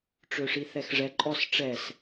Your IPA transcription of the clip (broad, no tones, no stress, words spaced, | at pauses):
ʈ͡ʂøʂiθɛxʐɛ ǃʼɔs ʈ͡ʂɛs